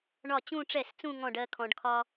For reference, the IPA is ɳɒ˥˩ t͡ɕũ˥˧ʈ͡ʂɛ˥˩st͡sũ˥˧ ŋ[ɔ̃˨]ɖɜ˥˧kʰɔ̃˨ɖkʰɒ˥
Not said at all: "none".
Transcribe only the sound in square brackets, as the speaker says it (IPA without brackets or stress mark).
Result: ɔ̃˥˩